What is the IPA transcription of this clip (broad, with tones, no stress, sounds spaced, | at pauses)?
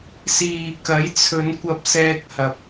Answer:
s iː˨ k ɐ˨˥ j t͡sʰ ɵ˨˧ n kʷ ɐ˧ p̚ s ɛː˧ k̚ h ɐ˨ p̚